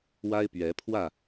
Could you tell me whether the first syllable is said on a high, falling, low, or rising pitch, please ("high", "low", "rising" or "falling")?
high